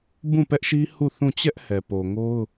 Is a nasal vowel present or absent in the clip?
present